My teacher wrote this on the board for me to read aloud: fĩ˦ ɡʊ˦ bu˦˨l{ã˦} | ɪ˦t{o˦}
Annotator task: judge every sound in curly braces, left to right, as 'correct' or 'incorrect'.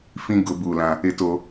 correct, correct

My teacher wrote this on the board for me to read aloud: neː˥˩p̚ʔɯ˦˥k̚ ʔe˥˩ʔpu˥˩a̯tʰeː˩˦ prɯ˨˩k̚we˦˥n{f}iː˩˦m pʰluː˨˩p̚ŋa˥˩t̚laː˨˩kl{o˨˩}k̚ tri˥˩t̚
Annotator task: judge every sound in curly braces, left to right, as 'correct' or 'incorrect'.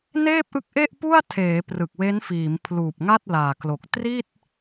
correct, correct

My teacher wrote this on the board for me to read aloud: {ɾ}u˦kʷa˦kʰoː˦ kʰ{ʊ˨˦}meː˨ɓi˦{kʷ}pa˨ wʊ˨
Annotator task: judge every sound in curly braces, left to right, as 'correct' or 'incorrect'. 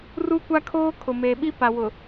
incorrect, incorrect, incorrect

